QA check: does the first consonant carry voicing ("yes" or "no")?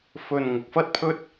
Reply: no